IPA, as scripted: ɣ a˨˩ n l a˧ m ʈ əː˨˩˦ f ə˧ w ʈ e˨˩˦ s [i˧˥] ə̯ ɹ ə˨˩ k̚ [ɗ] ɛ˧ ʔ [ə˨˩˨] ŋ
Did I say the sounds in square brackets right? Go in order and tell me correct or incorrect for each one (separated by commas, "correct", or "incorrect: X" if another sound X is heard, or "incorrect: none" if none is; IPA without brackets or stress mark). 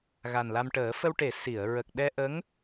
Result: incorrect: i˨˩˨, correct, incorrect: ə˧˥